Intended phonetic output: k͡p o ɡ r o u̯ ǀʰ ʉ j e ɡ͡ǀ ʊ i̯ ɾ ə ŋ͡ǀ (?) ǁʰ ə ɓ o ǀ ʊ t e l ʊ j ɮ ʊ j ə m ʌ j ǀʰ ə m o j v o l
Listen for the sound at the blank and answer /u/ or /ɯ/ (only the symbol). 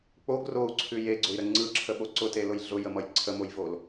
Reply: ɯ